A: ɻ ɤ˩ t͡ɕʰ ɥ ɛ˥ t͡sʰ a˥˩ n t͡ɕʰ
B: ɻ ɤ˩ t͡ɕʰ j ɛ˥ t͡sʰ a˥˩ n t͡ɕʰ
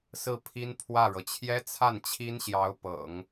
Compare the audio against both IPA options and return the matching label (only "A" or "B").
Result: B